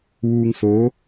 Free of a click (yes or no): yes